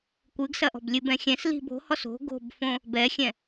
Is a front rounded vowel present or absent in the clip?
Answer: absent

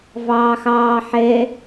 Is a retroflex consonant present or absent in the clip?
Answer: absent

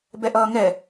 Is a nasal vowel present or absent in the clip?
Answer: absent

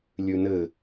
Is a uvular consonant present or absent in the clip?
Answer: absent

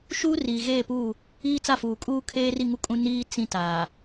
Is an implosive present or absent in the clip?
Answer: absent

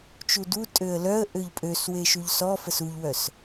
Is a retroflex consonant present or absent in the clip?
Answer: absent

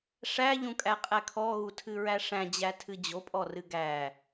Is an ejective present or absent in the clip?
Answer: present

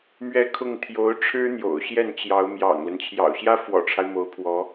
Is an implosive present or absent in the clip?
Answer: absent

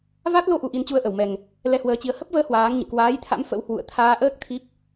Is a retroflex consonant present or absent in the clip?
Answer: absent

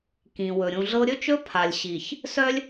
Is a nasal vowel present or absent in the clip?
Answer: present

